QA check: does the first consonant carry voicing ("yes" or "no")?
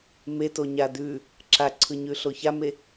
yes